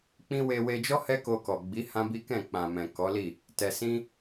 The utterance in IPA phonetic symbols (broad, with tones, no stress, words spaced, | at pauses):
k͡pĩ˦ we˧we˧d͡ʒɔ˦ hɛ˦ko˧kɔ˨ɡ͡bi˨˦ hã˦bi˦kɛ̃˦˨ k͡pã˨mɛ̃˨ kɔ˨˦li˦˨ | tɛ˧sĩ˦